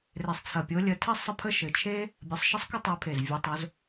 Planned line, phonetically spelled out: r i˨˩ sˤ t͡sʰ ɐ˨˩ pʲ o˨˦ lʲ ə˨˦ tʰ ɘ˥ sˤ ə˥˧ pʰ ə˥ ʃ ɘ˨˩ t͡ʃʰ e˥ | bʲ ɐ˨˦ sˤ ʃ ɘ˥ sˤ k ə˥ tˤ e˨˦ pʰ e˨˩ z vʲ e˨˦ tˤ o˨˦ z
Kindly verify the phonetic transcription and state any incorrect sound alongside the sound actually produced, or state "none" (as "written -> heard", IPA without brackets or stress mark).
i˨˩ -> e˨˩